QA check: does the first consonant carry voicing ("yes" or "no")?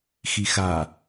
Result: no